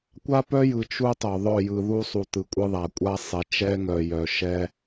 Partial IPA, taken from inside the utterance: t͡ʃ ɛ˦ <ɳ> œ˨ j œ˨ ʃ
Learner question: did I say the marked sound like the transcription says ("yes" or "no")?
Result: no